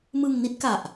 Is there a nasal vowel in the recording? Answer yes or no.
no